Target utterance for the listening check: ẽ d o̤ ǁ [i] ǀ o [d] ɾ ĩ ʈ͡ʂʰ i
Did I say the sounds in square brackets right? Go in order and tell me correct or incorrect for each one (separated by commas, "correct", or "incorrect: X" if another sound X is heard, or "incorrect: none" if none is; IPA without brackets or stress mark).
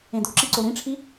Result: correct, incorrect: none